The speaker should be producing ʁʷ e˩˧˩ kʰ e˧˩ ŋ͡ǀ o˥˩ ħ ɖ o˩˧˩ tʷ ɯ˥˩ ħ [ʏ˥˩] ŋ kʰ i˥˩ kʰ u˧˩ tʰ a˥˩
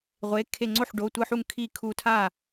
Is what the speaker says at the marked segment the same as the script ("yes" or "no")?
no